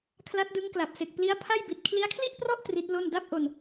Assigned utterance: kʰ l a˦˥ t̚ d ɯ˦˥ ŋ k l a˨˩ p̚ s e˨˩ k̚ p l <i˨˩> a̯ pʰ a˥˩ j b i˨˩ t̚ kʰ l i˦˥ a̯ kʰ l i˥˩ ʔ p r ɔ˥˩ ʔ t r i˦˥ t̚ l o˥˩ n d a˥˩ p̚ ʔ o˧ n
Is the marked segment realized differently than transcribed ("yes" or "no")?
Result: yes